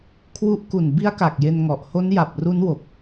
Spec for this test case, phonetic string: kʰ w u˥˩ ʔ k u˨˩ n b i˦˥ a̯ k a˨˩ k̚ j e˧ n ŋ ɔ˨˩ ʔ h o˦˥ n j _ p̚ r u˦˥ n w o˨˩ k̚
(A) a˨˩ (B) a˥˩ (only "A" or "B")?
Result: A